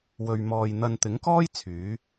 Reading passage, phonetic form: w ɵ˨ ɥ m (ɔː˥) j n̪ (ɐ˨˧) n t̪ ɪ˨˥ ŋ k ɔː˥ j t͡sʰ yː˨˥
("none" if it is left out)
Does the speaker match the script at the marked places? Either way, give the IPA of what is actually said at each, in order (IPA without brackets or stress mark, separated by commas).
ɔː˨, ɐ˧